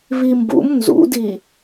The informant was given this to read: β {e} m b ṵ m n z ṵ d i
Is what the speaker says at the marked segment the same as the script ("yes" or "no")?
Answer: no